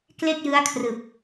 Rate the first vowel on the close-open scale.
mid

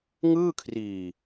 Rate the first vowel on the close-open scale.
close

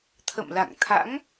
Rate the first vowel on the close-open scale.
mid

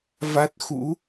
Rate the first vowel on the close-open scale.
open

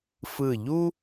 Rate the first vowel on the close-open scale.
close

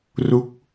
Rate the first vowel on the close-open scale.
close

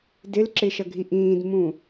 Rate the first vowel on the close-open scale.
close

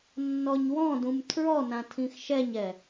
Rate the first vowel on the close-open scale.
mid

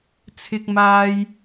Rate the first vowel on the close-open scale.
close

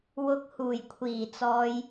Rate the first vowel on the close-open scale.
close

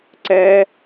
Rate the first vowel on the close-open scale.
mid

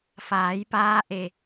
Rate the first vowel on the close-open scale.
open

